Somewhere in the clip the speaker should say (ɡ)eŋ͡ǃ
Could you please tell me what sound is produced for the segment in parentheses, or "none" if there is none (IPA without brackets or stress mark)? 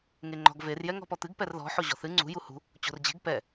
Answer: ŋ